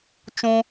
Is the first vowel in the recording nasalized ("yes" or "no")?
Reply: yes